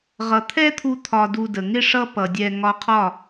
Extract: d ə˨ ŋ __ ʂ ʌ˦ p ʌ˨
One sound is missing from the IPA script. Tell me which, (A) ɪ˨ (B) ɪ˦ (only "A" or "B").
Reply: B